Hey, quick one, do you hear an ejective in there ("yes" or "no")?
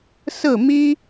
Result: no